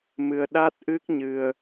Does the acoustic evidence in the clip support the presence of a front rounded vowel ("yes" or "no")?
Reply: no